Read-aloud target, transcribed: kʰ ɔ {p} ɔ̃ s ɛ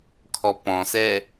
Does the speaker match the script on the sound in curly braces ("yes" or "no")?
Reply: yes